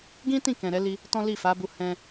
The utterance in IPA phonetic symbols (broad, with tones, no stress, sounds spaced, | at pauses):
ɡ ĩ˦ t ĩ˦˨ k ɛ̃˨ ɾ ɛ˨˦ l i˧ | t ɔ̃˦ l i˦˨ f a˨˦ b u˧ h ɛ̃˧